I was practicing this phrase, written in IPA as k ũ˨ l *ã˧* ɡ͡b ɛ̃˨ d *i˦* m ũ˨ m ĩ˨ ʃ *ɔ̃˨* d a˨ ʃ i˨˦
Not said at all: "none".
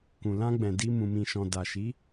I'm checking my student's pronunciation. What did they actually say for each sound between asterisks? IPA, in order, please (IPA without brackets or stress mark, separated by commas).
ã˧, i˧, ɔ̃˨